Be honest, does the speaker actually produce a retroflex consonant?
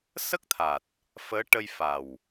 yes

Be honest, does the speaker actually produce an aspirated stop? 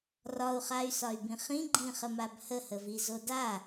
no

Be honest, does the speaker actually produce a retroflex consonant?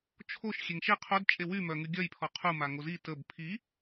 no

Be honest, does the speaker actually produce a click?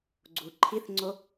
yes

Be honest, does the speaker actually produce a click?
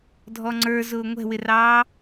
yes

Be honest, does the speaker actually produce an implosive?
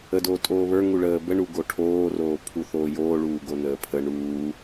no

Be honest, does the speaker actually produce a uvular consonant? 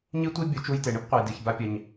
yes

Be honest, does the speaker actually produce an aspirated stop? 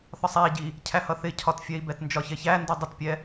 yes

